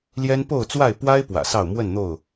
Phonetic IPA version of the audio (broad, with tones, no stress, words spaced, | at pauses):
ljɛ˦n po˥˨ʊ̯t͡swa˥˨ɪ̯ pwa˦ɪ̯ pwä̰˨˩sɑ˥˨ʊ̯ mwə˥˨nn̪o˥˨ʊ̯